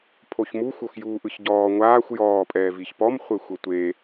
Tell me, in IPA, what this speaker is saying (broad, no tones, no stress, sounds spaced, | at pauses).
pʰ o ç m u xʷ o x j uː ʔ ɯ ç ɟ ɔː ŋʷ aː xʷ j ɔː pʼ ɛː v i ç p ɔ m χʷ e xʷ ɤ tʷ e